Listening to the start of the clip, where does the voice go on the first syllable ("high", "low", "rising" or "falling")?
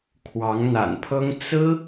rising